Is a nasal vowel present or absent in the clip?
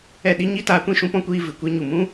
present